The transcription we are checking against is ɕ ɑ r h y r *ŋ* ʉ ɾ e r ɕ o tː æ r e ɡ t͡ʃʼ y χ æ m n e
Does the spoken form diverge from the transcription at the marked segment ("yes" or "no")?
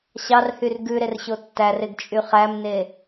yes